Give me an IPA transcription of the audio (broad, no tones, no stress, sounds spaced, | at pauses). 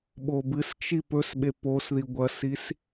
ɓ o b ɨ s t͡ʃ i p ɵ s ɓ e p o s ð i ɡʷ ɐ s i s